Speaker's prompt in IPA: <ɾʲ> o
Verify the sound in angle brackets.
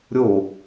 correct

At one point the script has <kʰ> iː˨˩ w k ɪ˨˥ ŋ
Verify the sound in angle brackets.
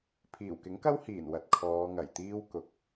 incorrect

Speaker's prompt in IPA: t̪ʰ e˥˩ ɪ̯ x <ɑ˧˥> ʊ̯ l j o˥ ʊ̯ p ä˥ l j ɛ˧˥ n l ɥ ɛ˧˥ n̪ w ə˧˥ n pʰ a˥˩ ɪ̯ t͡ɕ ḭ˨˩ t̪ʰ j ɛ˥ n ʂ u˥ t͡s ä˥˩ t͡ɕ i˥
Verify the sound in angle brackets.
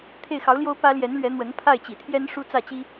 correct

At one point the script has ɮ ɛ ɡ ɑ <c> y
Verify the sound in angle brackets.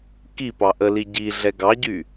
incorrect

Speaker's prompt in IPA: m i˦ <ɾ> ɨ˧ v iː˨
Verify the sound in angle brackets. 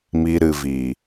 correct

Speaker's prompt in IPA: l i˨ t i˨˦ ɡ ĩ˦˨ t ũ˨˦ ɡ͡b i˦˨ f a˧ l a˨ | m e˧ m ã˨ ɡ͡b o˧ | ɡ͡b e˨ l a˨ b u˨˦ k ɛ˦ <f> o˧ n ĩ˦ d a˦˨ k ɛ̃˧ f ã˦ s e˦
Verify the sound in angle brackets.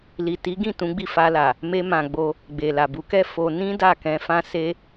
correct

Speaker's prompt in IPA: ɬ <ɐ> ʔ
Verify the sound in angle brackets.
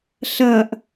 correct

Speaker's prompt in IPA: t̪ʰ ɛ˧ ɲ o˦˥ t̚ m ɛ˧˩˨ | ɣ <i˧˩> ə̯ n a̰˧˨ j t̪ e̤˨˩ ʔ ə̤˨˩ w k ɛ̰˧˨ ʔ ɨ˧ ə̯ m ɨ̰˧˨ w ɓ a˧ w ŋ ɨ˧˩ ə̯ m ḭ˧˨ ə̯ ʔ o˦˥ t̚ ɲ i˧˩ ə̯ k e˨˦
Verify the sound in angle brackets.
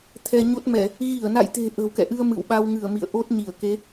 correct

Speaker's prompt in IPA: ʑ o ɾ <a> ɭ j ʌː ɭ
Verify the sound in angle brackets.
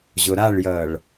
correct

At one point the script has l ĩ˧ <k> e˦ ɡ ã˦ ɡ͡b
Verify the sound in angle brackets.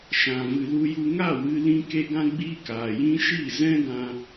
correct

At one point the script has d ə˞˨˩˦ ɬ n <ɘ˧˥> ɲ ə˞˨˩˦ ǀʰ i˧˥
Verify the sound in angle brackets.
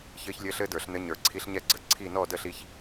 correct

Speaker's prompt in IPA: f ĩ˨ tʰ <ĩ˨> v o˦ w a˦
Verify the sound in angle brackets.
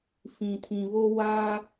correct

